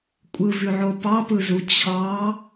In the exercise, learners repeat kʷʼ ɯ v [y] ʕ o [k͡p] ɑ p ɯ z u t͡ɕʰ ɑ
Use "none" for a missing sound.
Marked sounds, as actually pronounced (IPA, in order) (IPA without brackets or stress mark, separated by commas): y, p